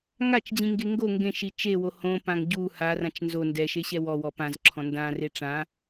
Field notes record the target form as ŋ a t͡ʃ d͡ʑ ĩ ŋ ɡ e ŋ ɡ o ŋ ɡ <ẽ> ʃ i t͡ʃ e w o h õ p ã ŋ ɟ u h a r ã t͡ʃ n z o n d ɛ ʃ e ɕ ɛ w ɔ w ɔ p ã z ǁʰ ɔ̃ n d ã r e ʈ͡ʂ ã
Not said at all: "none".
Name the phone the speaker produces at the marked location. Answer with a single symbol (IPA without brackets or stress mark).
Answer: ẽ